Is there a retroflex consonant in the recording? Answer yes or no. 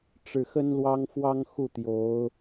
yes